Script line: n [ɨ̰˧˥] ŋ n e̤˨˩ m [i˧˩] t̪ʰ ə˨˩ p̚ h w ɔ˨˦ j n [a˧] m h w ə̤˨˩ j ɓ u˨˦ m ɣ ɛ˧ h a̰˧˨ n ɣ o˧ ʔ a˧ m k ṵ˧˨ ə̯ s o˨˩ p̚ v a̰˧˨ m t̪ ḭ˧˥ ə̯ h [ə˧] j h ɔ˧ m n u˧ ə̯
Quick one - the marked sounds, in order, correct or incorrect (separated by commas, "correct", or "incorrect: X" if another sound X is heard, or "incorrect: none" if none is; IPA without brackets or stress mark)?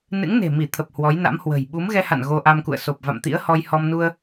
correct, correct, incorrect: a̰˧˥, incorrect: ɔ˧